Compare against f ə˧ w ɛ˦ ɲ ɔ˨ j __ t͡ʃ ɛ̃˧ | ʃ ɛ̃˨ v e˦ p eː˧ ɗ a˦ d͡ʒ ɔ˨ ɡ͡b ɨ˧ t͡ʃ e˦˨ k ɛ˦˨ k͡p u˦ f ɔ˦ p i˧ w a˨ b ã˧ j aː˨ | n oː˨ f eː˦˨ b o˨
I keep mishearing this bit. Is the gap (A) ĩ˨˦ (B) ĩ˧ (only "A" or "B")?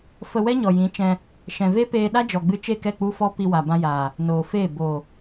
A